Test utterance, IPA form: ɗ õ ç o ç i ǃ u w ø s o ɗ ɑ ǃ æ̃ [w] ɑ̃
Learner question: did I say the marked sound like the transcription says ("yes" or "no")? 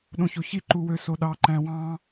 yes